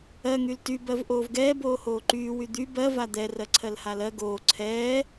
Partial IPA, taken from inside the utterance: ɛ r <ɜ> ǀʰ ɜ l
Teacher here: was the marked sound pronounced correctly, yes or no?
yes